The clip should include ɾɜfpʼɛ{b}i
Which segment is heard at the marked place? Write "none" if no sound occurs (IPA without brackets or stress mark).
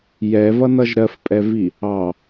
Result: v